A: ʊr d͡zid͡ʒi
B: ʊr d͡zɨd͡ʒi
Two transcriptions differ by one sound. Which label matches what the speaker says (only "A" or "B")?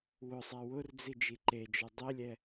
A